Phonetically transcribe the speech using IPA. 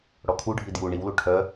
ɽɔkʰuɖʱi dju ɳiwlu ʈʰœ

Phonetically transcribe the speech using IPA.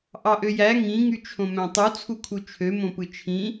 ʔɑʔøjæ ŋĩ ŋyt͡ʃʰõmæ̃tˤu t͡sʰukʰut͡ʃʰø mõpɯt͡ʃʰĩ

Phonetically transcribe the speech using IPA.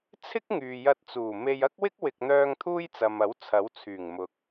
t͡sʰɪ˥k̚ŋyː˨jɐ˧t̚ t͡suː˨˩ me˧jɐ˥k̚wɪ˥k̚ wɪ˨k̚n̪œː˧ŋ t̪ʰuː˥jt͡sɐ˨mɐ˨˥w t͡sʰɐ˨˥wt͡sʰyː˨˩ŋ mʊ˨k̚

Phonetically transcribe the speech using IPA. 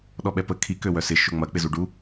ɗɔɓɛpə kʰi køwœsɪ ʃʊŋ͡mɐ k͡pɪzuɖu

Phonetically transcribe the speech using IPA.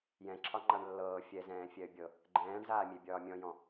jɛ̃ǁʰɒ ŋ͡ǃaɳlːɤː fʲɛzɛ̃ː fʲɛə̯bʲɤ | ɡ͡ǃɛ̃ːɳzaːmʲe bʲɒːmʲɔ̃jɔ̃

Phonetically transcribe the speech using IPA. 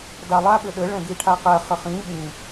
dalˠa ɓɘɗɘ ɭɛ̃ɡiʈʰaqɛ χɘχĩ ɓĩ

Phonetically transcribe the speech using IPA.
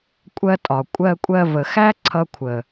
kʷʼɜ˧tʼɒ˨ kʷʼɜ˧kʷʼɜ˧və˨xæ˦ ǀʰʌ˧kʷʰə˨

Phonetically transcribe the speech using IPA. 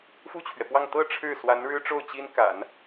fu˥˩t͡ɕʰɥɛ˩pwɑ˥˧ŋ t̪ɤ˥˧ ʈ͡ʂʰɻ̩˥˩swa˧˥n ɻɻ̩˥ʈ͡ʂo˥˩ʊ̯t͡ɕi˥n ka̰˨˩˦n

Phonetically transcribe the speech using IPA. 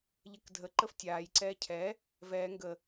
ʎɛkdʱə ǃəftʲaːj ǀɛːcʰɛ | vɛː ŋɡə

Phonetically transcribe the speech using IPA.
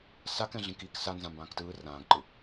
sakɛ̃ɮĩk ik sa nzãmbãːktɯː rãːɡǃɯ

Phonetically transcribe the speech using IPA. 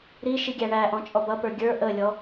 ɾiʃiɡʲæ ɳæʔɔ̃t͡ʃʼɔ bʌpə˞ ɡʲə˞ ʔəlʲɔ

